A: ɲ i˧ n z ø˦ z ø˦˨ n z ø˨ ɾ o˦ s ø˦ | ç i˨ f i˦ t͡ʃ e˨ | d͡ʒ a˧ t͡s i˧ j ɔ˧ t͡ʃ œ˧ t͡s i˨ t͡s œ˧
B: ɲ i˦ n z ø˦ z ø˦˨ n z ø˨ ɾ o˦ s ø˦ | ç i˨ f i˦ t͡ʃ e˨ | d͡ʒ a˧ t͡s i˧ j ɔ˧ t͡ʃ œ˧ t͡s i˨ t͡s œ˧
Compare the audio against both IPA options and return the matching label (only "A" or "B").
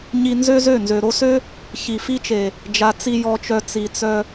A